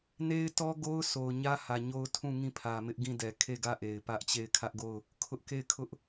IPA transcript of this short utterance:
ne˦ɪ̯tɔ˦ɡo˦ʊ̯ sʰo˨ʊ̯ɲä˦hä˨ ɲo˦ʊ̯ tʰũ˦˨ ŋĩ˦˨pʰä˨mɪ˦ʔɡĩ˦˨ dɛ˨kʰe˦˨ɡä˦˨ʔe˨ɪ̯ pä˦ʔt͡ɕe˦˨ɪ̯ kʰä˦ʔɡo˦˨ʊ̯ | kʰʊ˦ʔke˦˨ɪ̯kʰʊ˦ʔ

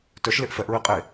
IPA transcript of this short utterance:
tœʃ leʔfɛʔ ɹiqʼe

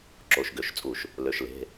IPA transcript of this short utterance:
ǁo˩˧˩ʃɡø˧˩˧ʃt͡sʼu˧˩˧ʃ | lø˩˧˩ʃle̤˩˧˩

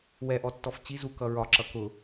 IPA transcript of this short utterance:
wɛʔɔtːɔf t͡ɕizu kʌɹɒǁʌ kʊ

